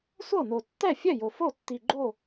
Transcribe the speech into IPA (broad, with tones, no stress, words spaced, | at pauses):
sʷɤ˥˩no˨˩ tːɛ˥˩fʲɛ˥˩ jo˨˩ fo˥˩ tːi˨˩ɡ͡ǃo˥˩